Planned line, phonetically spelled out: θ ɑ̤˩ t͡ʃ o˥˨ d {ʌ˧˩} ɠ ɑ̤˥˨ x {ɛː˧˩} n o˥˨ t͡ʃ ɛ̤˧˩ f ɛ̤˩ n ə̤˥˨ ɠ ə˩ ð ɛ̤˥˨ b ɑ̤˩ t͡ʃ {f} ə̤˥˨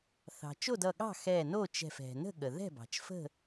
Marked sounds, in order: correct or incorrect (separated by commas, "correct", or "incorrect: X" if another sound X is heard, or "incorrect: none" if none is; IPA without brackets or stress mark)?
correct, correct, correct